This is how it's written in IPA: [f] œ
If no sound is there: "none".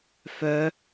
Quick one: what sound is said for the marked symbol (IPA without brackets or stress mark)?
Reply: f